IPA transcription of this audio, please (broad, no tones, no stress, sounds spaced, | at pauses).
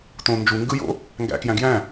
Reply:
t õ n d͡ʒ u ŋ ɡ ɯ j o̰ | ŋ ɡ æ̰ k j æ̃ ɡ j æ̃